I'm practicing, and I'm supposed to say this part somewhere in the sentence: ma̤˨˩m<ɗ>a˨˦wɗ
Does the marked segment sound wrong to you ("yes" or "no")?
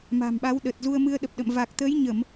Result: yes